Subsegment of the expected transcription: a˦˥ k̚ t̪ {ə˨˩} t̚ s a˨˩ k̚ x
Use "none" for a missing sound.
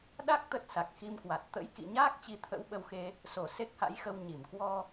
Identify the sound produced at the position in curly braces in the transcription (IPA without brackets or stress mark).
ə˦˥